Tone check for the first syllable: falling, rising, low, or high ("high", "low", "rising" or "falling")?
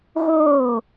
falling